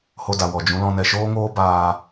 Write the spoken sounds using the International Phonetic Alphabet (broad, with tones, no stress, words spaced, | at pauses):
ho˧da˨ wɔ˨d͡ʒũ˨˦lɔ̃˧nɛ˧ ʃoː˦ŋoː˦ baː˧